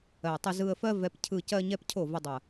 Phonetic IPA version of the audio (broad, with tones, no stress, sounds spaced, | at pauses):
ɜ˨ tˤ ə˧ z ɯ˧ ə̯ f ɜ˦ v ɛ˧ p cʰ ɯ˧ c ɜ˦ ɲ ɛ˦ p cʰ o˦˨ v ə˦ dˤ ɐ˦˨